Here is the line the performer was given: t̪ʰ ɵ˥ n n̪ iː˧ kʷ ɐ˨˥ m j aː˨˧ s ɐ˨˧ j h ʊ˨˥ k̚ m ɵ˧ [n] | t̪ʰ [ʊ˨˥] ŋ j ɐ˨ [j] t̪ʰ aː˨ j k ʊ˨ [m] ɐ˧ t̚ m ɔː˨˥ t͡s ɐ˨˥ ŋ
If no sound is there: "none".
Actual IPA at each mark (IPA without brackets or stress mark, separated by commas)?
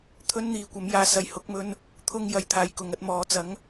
n, ʊ˥, j, ŋ